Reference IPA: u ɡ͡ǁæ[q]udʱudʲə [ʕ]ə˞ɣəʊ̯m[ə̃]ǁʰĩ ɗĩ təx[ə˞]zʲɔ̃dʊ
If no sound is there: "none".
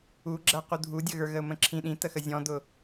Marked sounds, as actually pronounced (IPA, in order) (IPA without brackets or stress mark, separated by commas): q, ɣ, ə̃, ə